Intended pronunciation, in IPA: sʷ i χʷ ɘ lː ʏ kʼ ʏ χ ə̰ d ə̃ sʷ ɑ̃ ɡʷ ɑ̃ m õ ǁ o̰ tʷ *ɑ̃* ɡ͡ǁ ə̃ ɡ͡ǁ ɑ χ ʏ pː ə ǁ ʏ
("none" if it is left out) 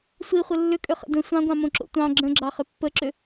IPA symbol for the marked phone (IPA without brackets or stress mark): ɑ̃